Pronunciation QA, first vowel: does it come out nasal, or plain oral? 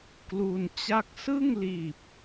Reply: oral